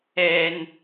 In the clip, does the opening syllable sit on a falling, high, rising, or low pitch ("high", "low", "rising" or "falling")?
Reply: high